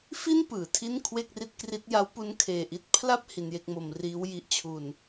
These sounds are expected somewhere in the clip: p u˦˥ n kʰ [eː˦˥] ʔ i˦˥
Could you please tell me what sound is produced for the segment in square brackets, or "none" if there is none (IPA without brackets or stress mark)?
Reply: eː˨˩